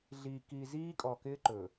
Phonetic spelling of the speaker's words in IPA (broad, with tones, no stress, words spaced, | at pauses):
ɮiː˨ki˨ ziː˦kʼɔ˨kɪː˦ ǃɵː˨